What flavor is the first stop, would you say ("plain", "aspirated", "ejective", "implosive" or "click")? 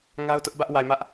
plain